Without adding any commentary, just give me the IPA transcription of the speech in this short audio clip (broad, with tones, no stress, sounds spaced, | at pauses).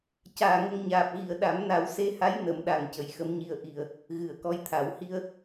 c aː˨˩ ŋ ə˧ ŋ ɲ aː˨˩ p̚ ɣ i˨˩ ə̯ ɗ a˨˩˦ m n a˨˩˦ w s e˧ h a˧˥ j n ə˨˩˦ m ɗ a˨˩ ŋ c ə˨˩ j x ə˧˥ m ɲ i˧ ə̯ ʔ i˨˩ ə̯ | ɣ ɨ˨˩˨ ə̯ k ɔ˧˥ j t̪ʰ a˨˩˦ w h i˧ ə̯